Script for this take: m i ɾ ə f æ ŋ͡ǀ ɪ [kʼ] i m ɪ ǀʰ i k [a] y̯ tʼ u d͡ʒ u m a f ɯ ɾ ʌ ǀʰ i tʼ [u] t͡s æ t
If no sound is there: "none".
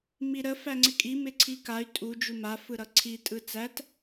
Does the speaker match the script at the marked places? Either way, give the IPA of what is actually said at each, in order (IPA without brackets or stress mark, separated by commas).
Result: kʼ, a, ɯ